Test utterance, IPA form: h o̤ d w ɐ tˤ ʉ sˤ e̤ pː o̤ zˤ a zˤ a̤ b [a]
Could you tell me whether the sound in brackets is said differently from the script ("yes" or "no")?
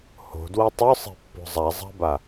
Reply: no